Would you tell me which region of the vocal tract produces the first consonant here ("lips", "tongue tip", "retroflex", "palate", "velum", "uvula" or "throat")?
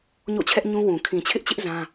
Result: palate